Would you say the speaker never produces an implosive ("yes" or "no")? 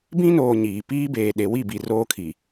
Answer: no